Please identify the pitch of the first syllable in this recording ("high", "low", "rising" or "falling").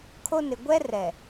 high